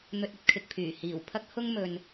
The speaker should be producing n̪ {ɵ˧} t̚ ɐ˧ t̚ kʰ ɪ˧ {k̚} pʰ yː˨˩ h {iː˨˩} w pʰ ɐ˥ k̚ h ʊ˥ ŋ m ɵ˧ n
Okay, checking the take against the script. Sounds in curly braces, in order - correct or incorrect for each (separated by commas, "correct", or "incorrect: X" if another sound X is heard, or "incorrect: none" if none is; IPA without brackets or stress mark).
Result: correct, correct, correct